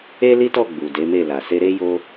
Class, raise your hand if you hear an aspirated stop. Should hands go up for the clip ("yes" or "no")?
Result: no